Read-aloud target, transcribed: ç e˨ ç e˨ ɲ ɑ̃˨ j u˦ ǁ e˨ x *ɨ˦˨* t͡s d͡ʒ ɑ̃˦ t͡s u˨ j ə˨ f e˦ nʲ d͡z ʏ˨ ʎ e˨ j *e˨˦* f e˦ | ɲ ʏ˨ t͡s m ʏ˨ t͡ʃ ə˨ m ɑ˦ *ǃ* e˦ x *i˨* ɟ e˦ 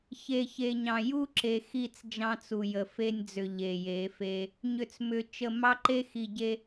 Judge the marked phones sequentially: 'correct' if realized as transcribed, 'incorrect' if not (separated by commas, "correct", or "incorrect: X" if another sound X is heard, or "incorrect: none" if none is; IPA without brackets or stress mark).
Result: incorrect: i˦˨, correct, correct, correct